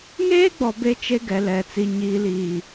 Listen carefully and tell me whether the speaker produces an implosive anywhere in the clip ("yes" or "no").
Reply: no